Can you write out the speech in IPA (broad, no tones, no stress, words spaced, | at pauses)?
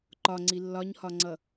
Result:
ǃɒŋ͡ǀi lːɒɲhɒŋ͡ǀʌ